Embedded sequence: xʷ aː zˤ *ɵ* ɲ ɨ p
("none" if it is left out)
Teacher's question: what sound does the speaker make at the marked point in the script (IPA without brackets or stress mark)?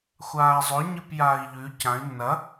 ɵ